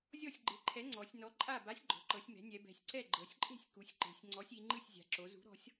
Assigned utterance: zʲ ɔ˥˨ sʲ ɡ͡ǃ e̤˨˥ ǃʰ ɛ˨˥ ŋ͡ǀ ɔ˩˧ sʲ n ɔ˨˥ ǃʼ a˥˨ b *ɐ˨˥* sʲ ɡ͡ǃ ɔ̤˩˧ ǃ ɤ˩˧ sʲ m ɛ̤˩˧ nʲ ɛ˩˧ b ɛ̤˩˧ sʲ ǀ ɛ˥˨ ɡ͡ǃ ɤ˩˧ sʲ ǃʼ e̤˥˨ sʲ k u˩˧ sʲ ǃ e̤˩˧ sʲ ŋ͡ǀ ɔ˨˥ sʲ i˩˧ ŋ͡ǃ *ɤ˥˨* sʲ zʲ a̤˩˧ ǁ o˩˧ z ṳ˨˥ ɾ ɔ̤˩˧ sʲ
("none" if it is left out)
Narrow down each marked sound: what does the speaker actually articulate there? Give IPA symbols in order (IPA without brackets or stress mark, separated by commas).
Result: a˨˥, ɯ˥˨